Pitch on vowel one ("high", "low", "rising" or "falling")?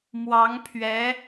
rising